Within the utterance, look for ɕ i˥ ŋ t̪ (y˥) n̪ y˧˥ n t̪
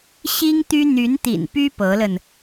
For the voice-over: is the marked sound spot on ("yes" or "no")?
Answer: yes